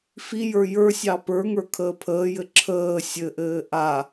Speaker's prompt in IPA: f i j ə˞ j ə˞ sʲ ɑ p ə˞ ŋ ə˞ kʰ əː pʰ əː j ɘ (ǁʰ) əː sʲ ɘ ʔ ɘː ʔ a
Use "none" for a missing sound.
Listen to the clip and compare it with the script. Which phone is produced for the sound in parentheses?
ǁʰ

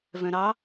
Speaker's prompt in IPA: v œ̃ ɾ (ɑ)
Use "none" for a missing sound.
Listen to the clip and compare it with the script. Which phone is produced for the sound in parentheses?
ɑ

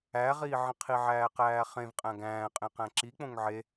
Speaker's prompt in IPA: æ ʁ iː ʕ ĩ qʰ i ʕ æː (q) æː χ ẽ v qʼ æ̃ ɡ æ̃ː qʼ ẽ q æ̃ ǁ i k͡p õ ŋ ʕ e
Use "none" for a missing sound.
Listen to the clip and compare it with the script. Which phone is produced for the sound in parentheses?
q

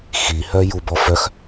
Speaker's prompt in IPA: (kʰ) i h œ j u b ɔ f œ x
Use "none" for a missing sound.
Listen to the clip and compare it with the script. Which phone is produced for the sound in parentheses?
x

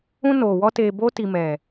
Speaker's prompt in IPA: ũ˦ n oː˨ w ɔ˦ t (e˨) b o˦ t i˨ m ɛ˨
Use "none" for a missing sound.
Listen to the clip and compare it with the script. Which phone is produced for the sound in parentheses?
e˨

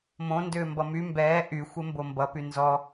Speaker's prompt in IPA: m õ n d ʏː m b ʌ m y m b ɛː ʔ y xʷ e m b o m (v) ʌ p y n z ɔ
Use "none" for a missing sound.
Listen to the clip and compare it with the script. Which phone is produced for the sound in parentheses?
b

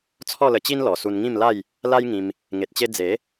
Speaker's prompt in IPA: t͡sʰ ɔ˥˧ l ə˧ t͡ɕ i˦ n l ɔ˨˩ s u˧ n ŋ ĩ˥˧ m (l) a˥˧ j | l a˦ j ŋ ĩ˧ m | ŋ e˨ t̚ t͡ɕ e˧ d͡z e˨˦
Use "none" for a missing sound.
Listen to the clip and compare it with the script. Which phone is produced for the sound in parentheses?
l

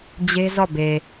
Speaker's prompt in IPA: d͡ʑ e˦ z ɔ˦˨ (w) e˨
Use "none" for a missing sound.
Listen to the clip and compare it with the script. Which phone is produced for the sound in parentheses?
b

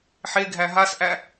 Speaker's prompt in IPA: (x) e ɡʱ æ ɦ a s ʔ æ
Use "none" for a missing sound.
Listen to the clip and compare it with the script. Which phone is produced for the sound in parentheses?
ħ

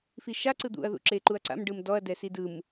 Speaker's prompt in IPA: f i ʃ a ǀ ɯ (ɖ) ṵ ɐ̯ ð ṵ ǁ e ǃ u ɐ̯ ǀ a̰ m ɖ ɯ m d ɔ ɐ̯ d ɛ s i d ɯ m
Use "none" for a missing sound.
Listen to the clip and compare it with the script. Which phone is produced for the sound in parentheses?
d̪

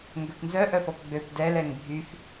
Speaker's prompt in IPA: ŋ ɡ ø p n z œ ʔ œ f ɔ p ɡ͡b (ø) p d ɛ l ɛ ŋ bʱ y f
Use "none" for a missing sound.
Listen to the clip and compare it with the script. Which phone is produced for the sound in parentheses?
ø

